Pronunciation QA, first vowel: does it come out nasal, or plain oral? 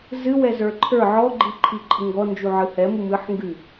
oral